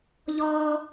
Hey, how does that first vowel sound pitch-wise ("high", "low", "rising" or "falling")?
high